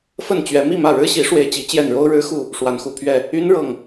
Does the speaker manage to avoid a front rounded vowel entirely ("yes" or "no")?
no